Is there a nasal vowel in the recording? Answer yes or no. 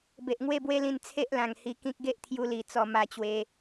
yes